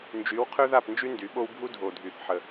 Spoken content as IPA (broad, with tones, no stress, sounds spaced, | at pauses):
n d͡ʒ y˨˦ w qʰ ø˦ ð a˦˨ p n d͡ʒ y˦ n d y˨˦ ɓ o˦ w bʱ u˦ dʱ o˨ dʱ y˨ θ ħ ə˦